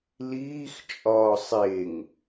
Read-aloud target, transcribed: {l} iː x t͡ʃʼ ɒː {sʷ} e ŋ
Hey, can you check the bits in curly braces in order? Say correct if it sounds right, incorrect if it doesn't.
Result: correct, incorrect: sˤ

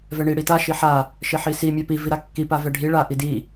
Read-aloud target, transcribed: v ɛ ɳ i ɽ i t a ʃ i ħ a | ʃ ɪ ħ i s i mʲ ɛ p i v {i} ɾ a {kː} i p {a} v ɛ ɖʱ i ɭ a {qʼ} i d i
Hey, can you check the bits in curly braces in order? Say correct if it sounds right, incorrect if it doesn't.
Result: correct, correct, correct, incorrect: ʔ

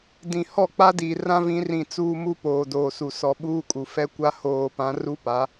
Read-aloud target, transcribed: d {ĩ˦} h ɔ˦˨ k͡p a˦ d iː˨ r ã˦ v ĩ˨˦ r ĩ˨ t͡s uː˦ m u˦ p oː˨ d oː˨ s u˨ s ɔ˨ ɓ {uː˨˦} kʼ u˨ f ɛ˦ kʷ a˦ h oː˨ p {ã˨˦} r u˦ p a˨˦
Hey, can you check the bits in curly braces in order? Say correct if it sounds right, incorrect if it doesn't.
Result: incorrect: ĩ˨, incorrect: uː˦, correct

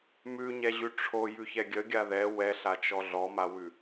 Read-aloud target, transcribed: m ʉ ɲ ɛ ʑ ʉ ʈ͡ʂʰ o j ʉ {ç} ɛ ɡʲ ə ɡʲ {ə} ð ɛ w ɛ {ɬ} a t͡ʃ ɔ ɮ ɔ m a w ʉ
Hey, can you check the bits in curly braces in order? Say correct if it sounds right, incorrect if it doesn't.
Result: correct, incorrect: a, correct

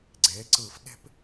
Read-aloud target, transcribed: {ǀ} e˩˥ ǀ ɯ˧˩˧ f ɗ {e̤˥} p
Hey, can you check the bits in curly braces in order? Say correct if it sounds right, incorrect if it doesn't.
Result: incorrect: ɡ͡ǀ, correct

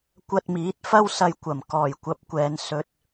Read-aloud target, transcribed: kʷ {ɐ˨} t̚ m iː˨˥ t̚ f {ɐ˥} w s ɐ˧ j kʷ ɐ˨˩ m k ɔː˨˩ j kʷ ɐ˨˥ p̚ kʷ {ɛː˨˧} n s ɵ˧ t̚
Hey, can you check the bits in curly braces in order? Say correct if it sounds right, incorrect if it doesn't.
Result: incorrect: ɐ˧, correct, correct

